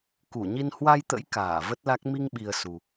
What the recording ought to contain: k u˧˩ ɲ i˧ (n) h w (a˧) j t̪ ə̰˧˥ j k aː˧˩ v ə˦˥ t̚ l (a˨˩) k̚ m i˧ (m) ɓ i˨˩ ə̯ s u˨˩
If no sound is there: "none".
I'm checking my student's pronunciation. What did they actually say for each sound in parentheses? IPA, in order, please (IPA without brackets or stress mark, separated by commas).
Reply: n, a˧, a˦˥, ŋ